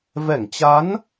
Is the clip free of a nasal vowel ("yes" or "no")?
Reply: yes